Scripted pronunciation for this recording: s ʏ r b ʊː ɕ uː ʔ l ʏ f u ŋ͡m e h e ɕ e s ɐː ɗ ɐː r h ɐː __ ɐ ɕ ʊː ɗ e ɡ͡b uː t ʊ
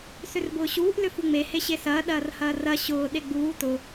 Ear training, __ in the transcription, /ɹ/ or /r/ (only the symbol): r